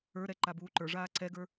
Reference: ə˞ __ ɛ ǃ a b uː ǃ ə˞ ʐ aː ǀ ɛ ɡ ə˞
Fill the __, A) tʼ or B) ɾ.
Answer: B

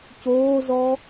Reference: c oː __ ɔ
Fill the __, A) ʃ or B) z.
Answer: B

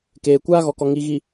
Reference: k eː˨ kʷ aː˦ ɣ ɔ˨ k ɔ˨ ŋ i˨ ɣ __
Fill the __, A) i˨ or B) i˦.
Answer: A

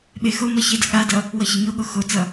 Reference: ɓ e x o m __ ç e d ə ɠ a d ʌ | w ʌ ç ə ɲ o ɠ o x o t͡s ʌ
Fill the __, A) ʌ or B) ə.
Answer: A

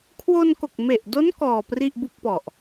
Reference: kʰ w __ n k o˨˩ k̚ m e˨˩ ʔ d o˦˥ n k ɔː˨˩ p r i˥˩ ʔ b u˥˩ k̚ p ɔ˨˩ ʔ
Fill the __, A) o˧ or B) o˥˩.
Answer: A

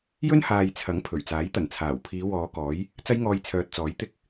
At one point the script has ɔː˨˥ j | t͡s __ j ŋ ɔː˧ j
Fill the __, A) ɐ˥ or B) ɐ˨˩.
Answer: A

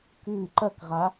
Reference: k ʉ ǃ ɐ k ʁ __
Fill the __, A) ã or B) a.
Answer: B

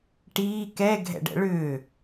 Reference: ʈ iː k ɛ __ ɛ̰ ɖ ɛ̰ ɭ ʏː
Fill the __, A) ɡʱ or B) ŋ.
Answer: A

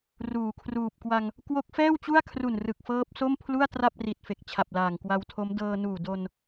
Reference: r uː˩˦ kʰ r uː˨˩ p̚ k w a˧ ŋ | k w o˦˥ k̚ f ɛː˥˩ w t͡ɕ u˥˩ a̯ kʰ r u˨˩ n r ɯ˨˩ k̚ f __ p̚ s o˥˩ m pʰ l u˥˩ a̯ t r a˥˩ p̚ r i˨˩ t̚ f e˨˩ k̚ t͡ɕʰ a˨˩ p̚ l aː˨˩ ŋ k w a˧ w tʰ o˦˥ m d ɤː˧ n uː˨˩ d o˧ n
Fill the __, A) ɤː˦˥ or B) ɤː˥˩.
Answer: A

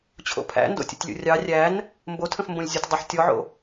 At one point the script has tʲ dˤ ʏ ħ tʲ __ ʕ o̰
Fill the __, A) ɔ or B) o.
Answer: A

